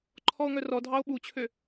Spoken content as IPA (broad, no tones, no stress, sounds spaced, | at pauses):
ǃʰ ɔ o̯ ŋ œ r ɔ dʱ ɑ o̯ ɓ u t͡ɕʰ ø